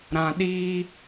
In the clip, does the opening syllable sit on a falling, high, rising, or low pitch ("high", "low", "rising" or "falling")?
low